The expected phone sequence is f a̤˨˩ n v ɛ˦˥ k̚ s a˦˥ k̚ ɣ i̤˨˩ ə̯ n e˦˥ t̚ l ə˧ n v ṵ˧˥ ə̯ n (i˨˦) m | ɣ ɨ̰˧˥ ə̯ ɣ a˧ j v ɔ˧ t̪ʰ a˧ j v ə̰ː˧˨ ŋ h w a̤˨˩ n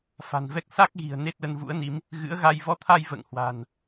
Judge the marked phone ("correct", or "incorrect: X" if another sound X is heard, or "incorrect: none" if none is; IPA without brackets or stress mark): correct